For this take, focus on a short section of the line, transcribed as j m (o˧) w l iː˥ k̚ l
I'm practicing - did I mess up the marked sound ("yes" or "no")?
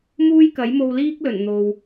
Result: no